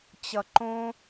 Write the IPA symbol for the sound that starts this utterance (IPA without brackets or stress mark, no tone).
t͡ɕ